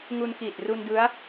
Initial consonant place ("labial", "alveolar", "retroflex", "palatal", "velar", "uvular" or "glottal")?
velar